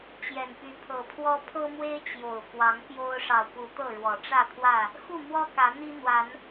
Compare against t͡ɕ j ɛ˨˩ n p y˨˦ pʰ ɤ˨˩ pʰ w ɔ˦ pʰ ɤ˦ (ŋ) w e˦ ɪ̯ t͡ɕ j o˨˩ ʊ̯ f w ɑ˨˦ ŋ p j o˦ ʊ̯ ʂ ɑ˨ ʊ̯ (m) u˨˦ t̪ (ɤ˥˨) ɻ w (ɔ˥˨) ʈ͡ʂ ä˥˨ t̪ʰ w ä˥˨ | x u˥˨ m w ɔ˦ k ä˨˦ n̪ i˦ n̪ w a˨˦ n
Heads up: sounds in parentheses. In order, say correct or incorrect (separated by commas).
incorrect, incorrect, correct, incorrect